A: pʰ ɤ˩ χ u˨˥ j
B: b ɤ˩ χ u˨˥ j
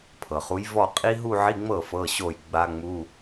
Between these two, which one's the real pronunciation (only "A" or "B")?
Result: A